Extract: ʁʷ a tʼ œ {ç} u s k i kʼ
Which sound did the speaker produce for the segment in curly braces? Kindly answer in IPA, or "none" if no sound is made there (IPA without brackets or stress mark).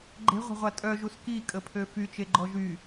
ʒ